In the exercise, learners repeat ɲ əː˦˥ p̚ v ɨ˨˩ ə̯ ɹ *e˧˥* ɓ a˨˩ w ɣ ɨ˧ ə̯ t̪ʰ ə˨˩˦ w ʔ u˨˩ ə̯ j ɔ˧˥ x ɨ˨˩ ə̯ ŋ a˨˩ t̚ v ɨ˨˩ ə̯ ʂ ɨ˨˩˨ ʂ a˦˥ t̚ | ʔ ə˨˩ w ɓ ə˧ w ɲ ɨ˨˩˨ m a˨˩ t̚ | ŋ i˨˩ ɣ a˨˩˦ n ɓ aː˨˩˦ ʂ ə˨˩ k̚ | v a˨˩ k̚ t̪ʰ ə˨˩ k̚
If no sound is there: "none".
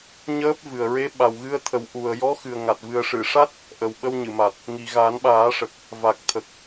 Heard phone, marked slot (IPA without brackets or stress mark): e˧˥